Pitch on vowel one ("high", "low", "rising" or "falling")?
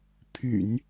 low